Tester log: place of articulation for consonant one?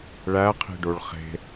retroflex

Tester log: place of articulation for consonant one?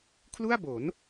velar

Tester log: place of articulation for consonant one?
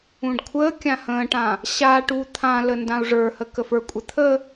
retroflex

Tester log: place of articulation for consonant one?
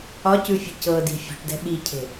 palatal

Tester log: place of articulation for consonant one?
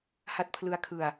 glottal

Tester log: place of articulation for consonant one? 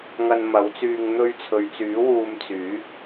velar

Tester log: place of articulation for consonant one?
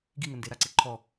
velar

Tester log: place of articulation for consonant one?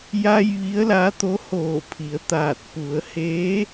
palatal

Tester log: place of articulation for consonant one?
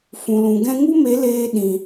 labial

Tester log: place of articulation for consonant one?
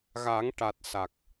velar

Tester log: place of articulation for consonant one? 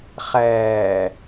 uvular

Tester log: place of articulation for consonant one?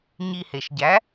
palatal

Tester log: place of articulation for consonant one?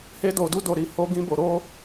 glottal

